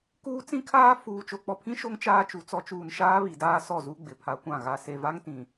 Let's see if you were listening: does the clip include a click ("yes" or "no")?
no